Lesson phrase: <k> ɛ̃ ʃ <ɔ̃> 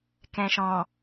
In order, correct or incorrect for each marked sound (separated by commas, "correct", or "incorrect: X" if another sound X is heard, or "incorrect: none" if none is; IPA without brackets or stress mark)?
correct, correct